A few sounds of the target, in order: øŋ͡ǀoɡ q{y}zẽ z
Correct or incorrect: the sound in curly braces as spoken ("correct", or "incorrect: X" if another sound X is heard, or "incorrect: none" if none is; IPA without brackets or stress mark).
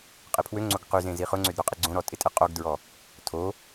correct